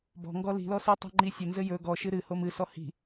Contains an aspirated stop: no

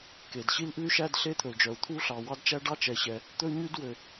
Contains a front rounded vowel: yes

